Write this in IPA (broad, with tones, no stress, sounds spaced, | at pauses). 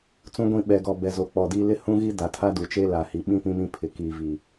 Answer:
t͡s ũ˦ ɡʷ ĩ˦˨ ɓ ɛ˨ ɡ ɔ˨ b ɛ˨ z o˨ k͡p ɔ˨ d iː˦ l ɪ˦ h ũ˦ ɣ i˦ d a˨ tʰ a˦ d u˨ t͡ʃ e˦ l a˨ h i˨ ɓ ĩ˦ p ĩ˦ m ĩ˦ pʰ ɪ˨ k iː˨ v iː˨